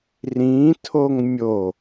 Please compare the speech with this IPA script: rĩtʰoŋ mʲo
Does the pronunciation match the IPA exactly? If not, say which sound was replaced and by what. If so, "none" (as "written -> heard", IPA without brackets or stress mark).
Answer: none